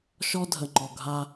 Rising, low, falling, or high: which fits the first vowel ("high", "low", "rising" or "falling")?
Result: high